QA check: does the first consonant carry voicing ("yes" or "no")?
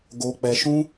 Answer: yes